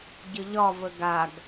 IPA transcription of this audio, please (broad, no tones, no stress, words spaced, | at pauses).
ɟəʎɒvə ɡaɡ